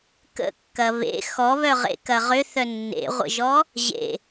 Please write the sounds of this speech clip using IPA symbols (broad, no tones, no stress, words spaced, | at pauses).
kə̰kːɐ βḛ xɔβœʁḛ kɐʁʏ θœnːḛʁʷə̰ʒɔ | ʑḛ